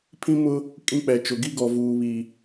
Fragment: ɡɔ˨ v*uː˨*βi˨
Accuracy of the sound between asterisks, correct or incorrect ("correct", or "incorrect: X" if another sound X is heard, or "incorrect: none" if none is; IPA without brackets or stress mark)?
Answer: correct